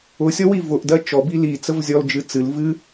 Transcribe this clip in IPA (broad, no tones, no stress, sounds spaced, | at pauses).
ʊ sʲ ɔ w i v ʊ ʔ d ɜ t͡ʃ ɔ b i l i t͡s ə v zʲ ɔ l d͡ʒ ɨ t͡s ɨ l v ɨ